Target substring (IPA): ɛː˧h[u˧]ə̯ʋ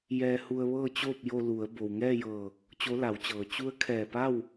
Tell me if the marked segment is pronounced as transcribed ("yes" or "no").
yes